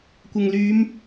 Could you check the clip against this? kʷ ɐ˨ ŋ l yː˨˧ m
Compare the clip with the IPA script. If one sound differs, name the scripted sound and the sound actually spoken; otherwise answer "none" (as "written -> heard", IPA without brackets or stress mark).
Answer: none